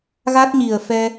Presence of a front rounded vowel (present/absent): absent